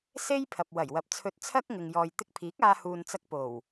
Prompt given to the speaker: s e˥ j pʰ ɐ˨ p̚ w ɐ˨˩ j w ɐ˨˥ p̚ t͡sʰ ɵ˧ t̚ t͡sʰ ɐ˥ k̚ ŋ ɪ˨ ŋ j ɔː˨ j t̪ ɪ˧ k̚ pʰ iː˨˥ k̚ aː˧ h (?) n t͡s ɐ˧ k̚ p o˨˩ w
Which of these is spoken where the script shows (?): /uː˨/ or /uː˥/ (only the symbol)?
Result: uː˨